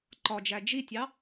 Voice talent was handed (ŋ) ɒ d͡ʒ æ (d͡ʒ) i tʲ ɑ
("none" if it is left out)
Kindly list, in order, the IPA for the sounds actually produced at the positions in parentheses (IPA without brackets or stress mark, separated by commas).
ǃ, d͡ʒ